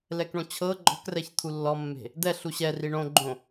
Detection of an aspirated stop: present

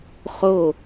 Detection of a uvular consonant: present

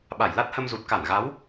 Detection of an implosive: present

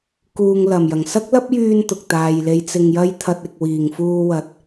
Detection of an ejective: absent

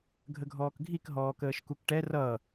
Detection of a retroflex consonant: present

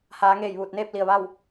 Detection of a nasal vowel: absent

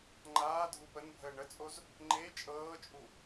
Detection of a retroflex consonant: present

